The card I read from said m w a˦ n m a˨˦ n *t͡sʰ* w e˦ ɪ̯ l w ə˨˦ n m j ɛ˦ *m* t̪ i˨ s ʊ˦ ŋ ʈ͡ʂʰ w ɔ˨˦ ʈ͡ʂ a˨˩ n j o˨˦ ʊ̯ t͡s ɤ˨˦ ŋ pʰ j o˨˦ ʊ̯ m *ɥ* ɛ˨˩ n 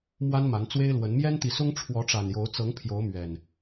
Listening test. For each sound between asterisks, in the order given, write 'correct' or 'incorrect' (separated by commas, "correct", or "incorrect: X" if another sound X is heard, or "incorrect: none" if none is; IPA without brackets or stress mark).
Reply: incorrect: t͡s, incorrect: n, correct